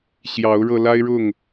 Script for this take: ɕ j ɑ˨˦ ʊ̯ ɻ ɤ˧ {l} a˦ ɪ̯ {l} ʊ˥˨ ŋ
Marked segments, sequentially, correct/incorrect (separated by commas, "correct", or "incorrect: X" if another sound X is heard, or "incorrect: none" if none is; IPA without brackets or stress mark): correct, incorrect: ɻ